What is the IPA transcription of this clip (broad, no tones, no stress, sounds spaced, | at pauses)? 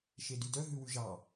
ʃ e d y d œ ɦ ʉ w ʉ ʒ ɑ